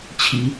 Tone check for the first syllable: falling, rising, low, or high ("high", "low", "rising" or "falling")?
rising